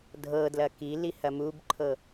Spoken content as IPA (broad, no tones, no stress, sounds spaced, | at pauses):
dʱ ɤ d l ɐ k i l i h ɐ m u b ǃʰ ɤ